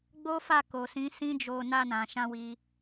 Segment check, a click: absent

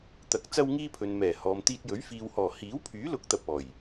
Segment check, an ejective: absent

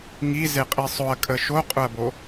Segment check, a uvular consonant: present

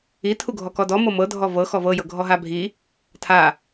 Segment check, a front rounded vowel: absent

